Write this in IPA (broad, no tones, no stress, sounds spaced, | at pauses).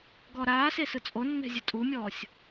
ɡ ɔ ɾ aː s e s ɯ t͡sʼ o nː ɛ̤ zʲ ɯ tʼ u mʲ ɔː sʲ